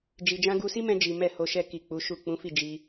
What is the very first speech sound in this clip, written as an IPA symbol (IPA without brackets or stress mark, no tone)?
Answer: d͡ʒ